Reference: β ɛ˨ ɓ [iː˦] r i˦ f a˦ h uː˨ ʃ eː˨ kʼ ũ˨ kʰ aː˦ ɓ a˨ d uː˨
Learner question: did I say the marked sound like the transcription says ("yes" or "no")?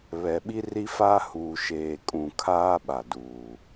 no